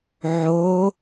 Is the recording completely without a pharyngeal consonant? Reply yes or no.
no